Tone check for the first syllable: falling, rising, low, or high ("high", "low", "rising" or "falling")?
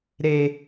high